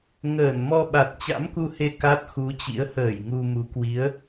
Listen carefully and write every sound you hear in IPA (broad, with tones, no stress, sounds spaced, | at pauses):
ŋ əː˧˩ n m ɔ˧ ɓ a˨˩ t̚ t͡ɕ a̰˧˥ m k u˧ h e˧ k a˦˥ t̚ x u˨˦ t͡ɕ ḭ˧˥ ə̯ h əː˧˩ j ŋ u˧ m u˨˦ k w i˨˦ ə̯